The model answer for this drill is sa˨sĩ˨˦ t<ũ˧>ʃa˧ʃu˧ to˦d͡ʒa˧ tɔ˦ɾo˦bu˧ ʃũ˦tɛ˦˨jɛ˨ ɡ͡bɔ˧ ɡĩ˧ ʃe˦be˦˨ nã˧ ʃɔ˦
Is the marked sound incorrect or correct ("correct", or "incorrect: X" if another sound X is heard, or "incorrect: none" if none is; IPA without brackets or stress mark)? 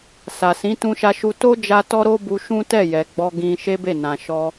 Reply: correct